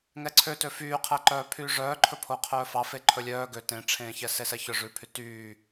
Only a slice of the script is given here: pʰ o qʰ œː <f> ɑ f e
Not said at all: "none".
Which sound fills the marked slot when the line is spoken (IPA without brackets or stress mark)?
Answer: f